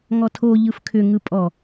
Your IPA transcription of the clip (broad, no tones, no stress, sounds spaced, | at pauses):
ŋ ɔ tʰ o ʎ ɯ f kʰ ʏ ŋ ɯ pʼ ɔ